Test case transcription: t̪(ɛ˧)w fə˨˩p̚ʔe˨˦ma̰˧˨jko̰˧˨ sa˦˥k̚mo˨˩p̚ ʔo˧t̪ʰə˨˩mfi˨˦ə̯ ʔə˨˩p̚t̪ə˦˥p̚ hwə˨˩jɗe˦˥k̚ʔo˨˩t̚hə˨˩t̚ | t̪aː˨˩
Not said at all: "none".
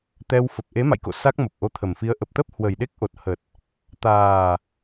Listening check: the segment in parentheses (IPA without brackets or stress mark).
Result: ɛ˧